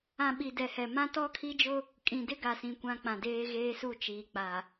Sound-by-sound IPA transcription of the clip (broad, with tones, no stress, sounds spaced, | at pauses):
ã˨ ɓ i˨ d ɛ˨ h ɛ˨ m ã˦ t ɔ˦ kʰ i˦ d͡ʒ ʊ˦ | kʼ ĩ˨ d ɪ˦ ɡ a˨ s ĩ˨ kʷ ã˦ k͡p ã˨ d eː˦ ɣ eː˦ s u˦˨ t͡ʃ iː˨ k͡p a˨